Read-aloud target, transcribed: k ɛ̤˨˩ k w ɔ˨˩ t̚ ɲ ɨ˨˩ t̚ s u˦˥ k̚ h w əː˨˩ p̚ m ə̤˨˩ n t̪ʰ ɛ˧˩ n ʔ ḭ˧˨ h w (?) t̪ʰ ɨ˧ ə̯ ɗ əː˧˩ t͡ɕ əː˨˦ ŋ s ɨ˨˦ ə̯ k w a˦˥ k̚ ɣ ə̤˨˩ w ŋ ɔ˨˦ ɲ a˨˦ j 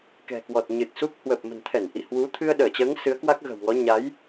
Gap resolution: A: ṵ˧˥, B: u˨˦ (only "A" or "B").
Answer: B